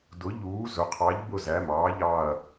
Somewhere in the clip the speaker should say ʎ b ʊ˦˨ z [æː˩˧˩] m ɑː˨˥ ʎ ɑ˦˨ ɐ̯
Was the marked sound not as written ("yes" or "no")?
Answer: no